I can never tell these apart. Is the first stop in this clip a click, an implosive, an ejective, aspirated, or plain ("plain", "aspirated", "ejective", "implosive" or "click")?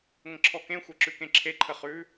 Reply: click